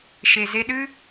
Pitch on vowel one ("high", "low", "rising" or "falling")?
low